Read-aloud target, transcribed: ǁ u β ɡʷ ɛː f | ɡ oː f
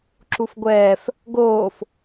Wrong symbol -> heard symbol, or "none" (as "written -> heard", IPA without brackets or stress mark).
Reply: β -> f